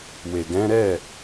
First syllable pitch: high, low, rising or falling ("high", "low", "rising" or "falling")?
low